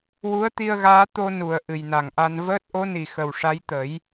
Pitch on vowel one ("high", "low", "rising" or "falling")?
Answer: rising